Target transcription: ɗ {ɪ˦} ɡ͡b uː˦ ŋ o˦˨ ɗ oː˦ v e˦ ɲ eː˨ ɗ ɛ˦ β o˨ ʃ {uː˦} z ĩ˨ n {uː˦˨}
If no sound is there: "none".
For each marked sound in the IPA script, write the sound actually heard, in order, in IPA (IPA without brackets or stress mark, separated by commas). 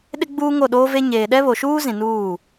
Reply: ɪ˦, uː˦, uː˦˨